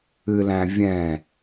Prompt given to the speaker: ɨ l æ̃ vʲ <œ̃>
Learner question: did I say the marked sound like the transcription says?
no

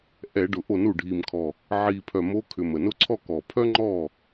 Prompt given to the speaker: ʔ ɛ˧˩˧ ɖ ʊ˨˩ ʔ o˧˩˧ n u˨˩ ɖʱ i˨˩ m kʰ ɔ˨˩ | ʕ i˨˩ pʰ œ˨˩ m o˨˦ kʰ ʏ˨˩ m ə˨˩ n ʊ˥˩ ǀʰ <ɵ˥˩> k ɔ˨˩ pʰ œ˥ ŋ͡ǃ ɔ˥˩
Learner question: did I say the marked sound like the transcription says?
no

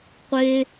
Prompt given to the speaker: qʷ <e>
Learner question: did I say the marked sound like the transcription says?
yes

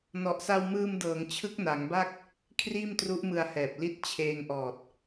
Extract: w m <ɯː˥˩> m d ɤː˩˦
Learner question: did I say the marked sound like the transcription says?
no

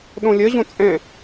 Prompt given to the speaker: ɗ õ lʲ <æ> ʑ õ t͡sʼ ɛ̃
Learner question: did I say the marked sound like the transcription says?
no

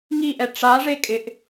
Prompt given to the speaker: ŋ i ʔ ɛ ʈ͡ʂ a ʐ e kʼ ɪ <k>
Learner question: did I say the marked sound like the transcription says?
no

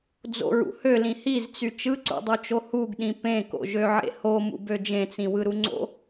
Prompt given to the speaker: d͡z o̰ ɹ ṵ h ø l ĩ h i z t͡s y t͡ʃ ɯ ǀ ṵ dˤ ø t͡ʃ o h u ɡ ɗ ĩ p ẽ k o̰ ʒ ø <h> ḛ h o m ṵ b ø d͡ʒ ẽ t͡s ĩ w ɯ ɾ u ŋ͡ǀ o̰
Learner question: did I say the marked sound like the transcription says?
no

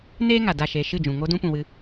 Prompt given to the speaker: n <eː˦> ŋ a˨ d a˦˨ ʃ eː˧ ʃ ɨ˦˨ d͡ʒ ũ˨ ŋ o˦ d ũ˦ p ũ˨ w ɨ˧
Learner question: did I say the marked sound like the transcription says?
yes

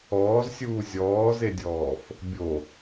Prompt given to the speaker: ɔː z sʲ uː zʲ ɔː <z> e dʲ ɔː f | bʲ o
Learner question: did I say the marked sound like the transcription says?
yes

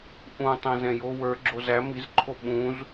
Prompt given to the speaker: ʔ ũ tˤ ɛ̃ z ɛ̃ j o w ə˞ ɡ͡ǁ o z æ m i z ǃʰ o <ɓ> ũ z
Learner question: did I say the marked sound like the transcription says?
yes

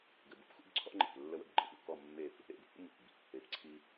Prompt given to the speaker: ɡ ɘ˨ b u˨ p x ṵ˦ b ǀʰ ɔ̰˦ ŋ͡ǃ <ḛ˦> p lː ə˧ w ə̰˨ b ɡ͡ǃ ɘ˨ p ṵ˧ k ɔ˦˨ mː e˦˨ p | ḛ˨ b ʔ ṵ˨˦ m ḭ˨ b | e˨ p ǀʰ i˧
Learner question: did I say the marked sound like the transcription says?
no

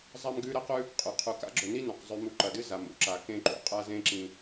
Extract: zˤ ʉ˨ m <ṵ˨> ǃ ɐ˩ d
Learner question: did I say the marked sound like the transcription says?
no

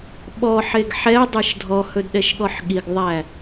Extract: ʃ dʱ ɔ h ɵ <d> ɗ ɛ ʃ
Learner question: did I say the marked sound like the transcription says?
yes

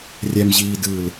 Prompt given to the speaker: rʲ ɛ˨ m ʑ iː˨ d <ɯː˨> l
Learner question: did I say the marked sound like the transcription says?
yes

